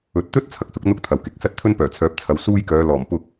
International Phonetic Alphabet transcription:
ɵ˨˥ t̚ t̪ ɵ˥ t̚ t͡sʰ ɐ˨˥ k̚ s ʊ˨˥ k̚ n̪ ʊ˥ k̚ t̪ʰ ɐ˨ w k ɪ˨˥ k̚ s ɐ˥ t̚ t̪ʰ ɵ˥ n p œː˨˩ t͡sʰ œː˨˥ p̚ t͡sʰ ɐ˨˥ w s uː˥ j k œː˨˧ l ɔː˨˩ m p ʊ˧ k̚

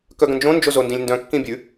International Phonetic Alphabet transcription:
k œ ɡ ə̃ n d͡ʒ õ n d͡ʒ o z o n d ĩ lʲ n d œ̃ kː ĩ bʲ ʉ

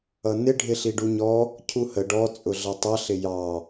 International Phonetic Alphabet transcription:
ʌ n ɪ ɖʱ ɪ ɬ i ɖ u ɲ ɔ | cʰ u h ə ɖ ɔ t͡sʼ ʊ ɮ ʌ tˤ ʌ ɬ ɪ j ɑ

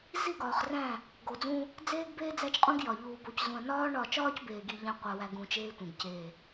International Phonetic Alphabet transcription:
z i˦˨ ɡ ɒː˨ χ r æ̃˦˨ | ɡ o˨ d͡z ũ˦ | d͡z eː˦ ɡ b eː˦ d͡z æ˦ t͡ʃ qʼ ũ˦ ɡ j ɒ˨ ʎ uː˨ b o˨ c z ũ˨ ɐ̯ n ɒː˦ ɳ ɒ˦˨ t͡ʃ ɒː˦ c b eː˨ ɡ i˨ ʎ æ̃˦ qʷ æ˨ w æ˨ ɡ ũ˨ t͡ʃ eː˦ tʷ ẽ˨ ɡ c e˦˨

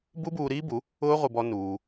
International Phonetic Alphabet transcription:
b u˦ b uː˧ ɾ iː˦ b u˨˦ | ʊː˦ ʁʷ ɪ˧ b ɔ˦ n uː˧

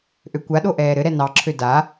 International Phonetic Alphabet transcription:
ʔ ø kʷ a ɗ o ʔ ɛː ɾ ɘ ɾ ɛ n ɑ ǁʰ ø d a

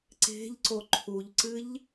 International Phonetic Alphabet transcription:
ǀ e̤ ʎ ǀ o ǃʰ u ʎ ǀ ɨ ʎ

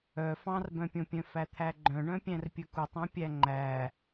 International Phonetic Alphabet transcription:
œ f ɑ̃ r b œ̃ pʲ õ pʲ œ̃ f æ t̪ʰ æ ɡ͡ǃ œ̃ ɳ œ̃ pʲ æ̃ r pʲ ɵ k u tˤ õ pʲ æ ŋ͡ǃ æ

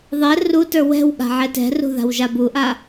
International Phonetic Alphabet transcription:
ðˤ ɛ r u t ə˞ w ɛ̤ w ɠ a̤ ʕ ɛ t ɛ̤ r ṳ ð a̤ w ʒ a b u ʔ a

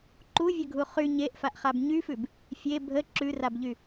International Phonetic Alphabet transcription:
ǃ u vʲ ə ɡʱ u χ y ɲ e ʔ f a ʔ χ a b ɲ y f ʉ b | fʲ e bʱ ə ǁ ʉ r a b ʎ y

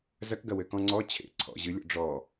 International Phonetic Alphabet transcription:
z ɐ k ɡ ɐ w ɘ k ɔ̃ ŋ͡ǀ ɔ t͡ɕʰ ḛ ǀʰ ɔ̰ ʑ ɨ lʲ ɔ̰ ɖ͡ʐ ɔ

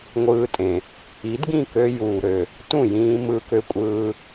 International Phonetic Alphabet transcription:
ŋʷ ɯː˧ tʼ ẽ˩ | i˩˥ d ɡ ĩ˥˩ k ø˧ j uː˩ ɾ ø˩ | t ũ˥˩ j ĩː˧ m ɯː˧ k ø˧ kʷʼ ɯː˧

